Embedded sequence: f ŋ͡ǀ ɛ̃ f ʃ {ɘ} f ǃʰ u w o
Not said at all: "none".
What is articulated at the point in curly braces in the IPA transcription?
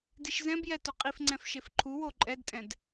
e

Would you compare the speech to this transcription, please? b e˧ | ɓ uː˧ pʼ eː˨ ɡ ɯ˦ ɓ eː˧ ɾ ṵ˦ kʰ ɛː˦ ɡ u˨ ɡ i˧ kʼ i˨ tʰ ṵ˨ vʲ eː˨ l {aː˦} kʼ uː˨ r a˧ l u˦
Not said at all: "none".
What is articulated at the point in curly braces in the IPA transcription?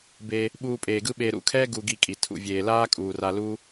aː˦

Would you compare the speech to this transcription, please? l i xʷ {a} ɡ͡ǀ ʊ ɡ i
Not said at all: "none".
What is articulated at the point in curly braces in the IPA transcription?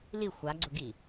a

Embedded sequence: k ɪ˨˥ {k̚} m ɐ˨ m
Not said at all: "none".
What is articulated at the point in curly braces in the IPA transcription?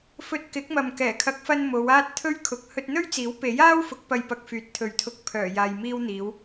k̚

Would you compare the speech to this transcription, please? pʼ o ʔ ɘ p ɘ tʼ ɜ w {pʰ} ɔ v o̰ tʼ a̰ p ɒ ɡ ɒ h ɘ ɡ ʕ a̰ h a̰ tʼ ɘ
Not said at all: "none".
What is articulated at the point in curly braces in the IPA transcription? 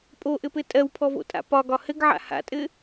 pʰ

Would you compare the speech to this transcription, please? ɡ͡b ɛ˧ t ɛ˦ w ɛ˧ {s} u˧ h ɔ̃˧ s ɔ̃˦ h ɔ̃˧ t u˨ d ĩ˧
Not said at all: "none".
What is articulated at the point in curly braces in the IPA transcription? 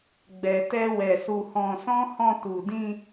s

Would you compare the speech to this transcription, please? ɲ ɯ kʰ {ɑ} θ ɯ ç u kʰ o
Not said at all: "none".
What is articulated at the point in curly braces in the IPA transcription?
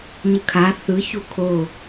a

